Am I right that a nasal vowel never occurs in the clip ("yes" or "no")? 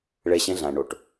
no